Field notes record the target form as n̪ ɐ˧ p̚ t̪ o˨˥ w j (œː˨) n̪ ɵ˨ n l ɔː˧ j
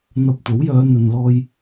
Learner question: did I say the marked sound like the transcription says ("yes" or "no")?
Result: no